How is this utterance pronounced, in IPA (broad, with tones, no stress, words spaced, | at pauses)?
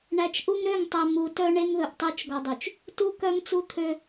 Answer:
ɳæ˨t͡ʃʔu˦ŋɾø˦˨ŋtˤœ˨ mu˨tœ˦ ɳe˦ŋðɵ˨ʔtˤø˦t͡ʃ ɡɔ˨dˤy˨t͡ʃ | tu˦ kœ˦ŋt͡su˦t̪ʰø˦